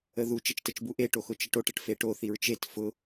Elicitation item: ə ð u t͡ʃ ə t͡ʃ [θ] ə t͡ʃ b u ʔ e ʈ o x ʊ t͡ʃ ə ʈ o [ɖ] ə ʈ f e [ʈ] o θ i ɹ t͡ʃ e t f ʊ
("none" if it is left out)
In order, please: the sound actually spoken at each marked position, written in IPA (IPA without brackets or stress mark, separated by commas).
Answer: t, ʈ, ʈ